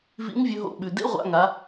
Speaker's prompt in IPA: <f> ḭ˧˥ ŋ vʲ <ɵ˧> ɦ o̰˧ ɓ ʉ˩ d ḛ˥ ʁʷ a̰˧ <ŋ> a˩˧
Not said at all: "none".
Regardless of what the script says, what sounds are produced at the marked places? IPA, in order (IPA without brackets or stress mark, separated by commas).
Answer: v, ɵ˧, ŋ